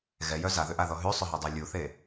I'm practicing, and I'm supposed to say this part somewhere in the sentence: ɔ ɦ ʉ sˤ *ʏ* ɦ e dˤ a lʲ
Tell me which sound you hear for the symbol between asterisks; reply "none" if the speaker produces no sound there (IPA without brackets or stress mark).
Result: ʏ